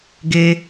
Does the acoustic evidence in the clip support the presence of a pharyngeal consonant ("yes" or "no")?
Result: no